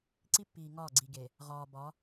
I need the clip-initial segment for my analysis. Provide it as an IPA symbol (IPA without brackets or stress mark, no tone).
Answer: ǀ